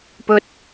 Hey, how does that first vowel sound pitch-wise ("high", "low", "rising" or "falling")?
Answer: rising